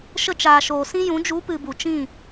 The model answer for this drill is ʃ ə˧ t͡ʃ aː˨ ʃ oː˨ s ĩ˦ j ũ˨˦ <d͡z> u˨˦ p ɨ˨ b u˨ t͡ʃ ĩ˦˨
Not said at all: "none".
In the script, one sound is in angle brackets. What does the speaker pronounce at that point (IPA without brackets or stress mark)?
d͡ʒ